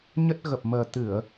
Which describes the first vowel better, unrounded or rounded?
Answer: unrounded